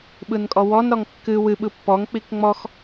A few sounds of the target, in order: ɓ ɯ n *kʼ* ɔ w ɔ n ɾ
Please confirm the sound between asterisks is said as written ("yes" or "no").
yes